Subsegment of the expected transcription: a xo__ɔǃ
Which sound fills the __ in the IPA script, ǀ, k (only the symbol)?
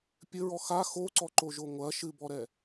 ǀ